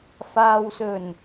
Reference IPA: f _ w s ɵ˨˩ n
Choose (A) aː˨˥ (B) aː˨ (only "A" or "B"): B